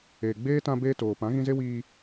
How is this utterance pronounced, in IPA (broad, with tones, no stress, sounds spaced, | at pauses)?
eː˨ ɡ͡b eː˦ t ã˧ b eː˧ t oː˨ p ã˨˦ ɣ ĩ˧ z e˦ w iː˧